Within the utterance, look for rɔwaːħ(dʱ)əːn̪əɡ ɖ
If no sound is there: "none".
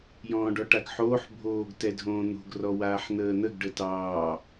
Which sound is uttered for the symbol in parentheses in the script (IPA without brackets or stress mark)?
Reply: n̪